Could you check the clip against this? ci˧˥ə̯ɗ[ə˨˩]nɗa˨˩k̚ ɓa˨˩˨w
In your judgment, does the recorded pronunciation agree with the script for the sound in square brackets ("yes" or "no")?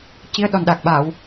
no